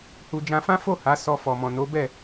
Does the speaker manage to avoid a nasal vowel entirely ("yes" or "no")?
no